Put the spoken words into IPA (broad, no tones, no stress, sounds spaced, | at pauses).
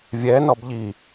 vʲ ɛ n ɔ b ʎ i